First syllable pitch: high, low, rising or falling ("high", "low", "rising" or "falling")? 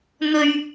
low